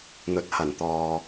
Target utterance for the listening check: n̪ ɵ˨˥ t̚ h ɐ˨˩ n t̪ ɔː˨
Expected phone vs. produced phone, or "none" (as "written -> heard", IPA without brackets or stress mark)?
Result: none